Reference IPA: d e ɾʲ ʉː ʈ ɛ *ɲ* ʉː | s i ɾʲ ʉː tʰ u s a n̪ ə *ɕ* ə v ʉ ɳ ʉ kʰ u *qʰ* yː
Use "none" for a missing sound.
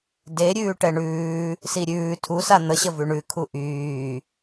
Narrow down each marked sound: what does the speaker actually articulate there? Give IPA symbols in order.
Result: ɳ, ɕ, ʔ

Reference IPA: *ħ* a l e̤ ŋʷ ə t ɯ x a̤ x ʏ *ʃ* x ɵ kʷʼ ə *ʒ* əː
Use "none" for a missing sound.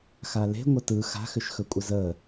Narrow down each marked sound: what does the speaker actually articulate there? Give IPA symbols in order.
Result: x, ʃ, z

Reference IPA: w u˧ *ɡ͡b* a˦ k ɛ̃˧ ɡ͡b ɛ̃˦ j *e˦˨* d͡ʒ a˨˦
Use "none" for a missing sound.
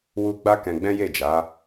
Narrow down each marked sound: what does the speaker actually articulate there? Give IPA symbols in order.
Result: ɡ͡b, e˦˨

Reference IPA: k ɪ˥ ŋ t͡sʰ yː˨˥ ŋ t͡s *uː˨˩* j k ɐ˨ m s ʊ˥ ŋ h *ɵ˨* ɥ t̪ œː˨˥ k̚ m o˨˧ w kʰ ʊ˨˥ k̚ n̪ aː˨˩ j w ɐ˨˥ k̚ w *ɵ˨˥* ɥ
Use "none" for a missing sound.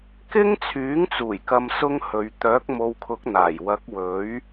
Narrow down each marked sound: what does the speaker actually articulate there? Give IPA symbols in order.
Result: uː˨˩, ɵ˨˧, ɵ˨˥

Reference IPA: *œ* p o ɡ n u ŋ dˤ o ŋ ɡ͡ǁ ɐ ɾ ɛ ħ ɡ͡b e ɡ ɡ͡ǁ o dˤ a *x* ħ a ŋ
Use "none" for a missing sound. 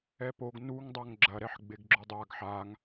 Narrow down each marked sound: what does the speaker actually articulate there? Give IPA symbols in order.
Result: ɛ, ɡ

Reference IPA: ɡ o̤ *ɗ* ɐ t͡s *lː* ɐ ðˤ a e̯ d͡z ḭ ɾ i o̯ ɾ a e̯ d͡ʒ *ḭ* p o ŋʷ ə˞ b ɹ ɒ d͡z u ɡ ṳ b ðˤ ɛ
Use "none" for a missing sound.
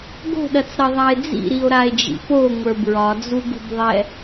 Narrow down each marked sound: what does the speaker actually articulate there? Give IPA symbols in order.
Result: ɗ, ɾ, ḭ

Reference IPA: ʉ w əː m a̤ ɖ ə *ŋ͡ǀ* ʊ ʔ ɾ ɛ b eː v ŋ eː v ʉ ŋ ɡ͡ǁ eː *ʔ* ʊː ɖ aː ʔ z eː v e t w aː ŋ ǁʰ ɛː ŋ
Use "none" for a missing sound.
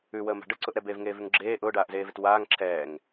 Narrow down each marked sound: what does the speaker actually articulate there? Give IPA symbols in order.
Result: ǀ, ʔ

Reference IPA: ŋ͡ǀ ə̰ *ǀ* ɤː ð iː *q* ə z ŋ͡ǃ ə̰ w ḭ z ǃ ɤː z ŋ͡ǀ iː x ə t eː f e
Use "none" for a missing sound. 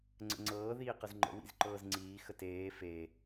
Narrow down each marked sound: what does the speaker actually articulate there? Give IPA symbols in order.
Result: ŋ͡ǀ, q

